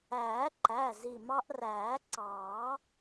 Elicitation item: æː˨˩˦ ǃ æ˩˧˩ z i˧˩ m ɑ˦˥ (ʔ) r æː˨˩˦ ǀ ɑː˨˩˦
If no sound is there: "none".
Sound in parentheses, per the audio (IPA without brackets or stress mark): ʔ